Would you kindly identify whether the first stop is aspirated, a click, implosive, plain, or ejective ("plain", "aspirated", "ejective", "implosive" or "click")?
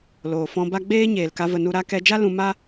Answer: plain